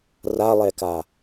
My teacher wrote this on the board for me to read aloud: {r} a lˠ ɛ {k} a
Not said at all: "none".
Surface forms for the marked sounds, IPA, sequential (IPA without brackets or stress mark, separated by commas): r, k